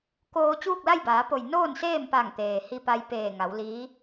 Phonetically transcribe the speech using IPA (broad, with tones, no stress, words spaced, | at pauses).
koː˧ t͡ɕuː˥˨k̚la˥˨jbaː˩˧po˧˩j noː˥˨nseː˥˨mpa˧˩ŋt̪eː˩ hi˧pa˧jpeː˧˩ŋa˩˧w liː˧˥